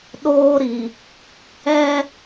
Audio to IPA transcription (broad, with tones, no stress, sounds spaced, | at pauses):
ɗ oː˦ ɾ i˨ | ɛ˦